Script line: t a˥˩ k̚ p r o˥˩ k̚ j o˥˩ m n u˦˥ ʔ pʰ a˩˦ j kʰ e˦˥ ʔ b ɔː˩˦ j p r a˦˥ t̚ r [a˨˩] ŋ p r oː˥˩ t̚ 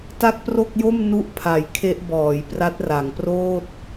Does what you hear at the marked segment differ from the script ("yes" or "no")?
yes